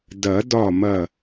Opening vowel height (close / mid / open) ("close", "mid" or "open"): open